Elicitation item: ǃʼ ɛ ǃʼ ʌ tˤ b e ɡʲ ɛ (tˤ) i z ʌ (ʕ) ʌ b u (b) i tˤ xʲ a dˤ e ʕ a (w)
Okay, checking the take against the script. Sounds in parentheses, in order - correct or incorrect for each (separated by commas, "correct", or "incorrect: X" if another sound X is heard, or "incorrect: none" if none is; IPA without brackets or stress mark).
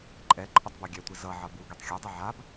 incorrect: tʷ, correct, incorrect: ɡ, incorrect: b